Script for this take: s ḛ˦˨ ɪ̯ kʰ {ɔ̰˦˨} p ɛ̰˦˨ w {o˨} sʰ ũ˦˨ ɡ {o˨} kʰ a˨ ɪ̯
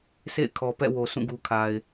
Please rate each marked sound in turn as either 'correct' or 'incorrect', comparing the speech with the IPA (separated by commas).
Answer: incorrect, correct, incorrect